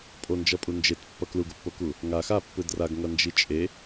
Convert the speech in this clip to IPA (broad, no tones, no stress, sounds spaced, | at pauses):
pʼ o n d͡ʒ ʌ pʼ u n d͡ʒ e t pː ʌ k l u ɡ o pː o k u | ŋ a x a pː ɯ d r a ɡ ŋ ʌ n d͡ʒ i t͡ʃʼ e